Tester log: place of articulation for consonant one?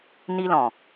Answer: alveolar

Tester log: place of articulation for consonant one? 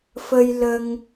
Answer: labial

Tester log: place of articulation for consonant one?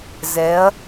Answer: alveolar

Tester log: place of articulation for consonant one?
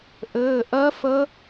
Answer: glottal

